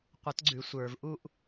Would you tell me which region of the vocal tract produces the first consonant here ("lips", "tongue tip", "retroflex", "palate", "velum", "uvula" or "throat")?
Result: uvula